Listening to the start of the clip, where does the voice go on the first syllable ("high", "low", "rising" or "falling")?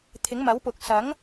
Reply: rising